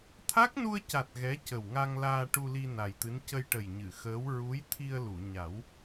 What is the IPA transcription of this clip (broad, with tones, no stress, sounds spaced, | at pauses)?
t̪ʰ a˦˥ k̚ n u˧ ə̯ c a˨˩ t̚ ɣ ɛ˧˥ c ə˨˩ w ŋ a˧ ŋ l aː˧ ʈ u˧ l i˧ n a˨˩ j t̪ ɨ˧˥ n c ə˧ j ʈ ə˨˩ j ɲ ɨ˨˩˨ x əː˧˥ w ɹ u˧˥ j t̪ʰ i˧ ə̯ l u˨˩˨ ɲ a˨˩˦ w